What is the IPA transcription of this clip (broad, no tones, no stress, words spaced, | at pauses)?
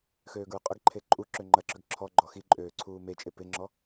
xøːɡɹʏqʼəɡǃʰe ǃʼuǁø ŋ͡ǃɐǁʏɡ ǁʰɔ ɡ͡ǃɔxiǃʼøː ǀʰuːmet͡ʃʼe pɪŋ͡ǁɔ